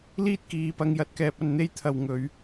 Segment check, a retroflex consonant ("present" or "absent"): absent